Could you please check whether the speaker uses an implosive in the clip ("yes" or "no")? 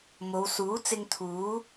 no